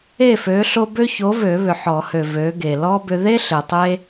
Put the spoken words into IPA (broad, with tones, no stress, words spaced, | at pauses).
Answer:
e˥˩fø˨˥ɬo˦ bø˦ço˨˥vø˨˩˦ βʏ˨ħɔ˨˩˦hø˨ vø˨˥ɡe˨ lɔ˦ bʏ˦ ðe˦ ɬe˨tˤe˦